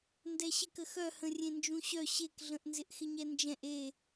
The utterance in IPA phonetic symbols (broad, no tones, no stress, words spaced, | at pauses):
ndɛɕɪkə xœhə̃ rʲẽnd͡ʒũɕœ ɕekɮə̃ʔ nzɪʔxɪɲɛnd͡ʒɛ̃ʔ e